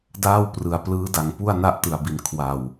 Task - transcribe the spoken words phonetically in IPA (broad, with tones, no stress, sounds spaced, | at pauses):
d aː˥˩ w p r ɯ˩˦ a̯ p l ɯː˦˥ d a˨˩ ŋ p u˥˩ a̯ n a˥˩ ʔ t ɯ˨˩ a̯ b i˨˩ n kʰ w a˨˩ w